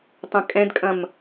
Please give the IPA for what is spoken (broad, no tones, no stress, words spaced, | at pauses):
tˤɐ̃kʼɛ̃dkʼɐ̃m